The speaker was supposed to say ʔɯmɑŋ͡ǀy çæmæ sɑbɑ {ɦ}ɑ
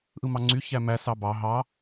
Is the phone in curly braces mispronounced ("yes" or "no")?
no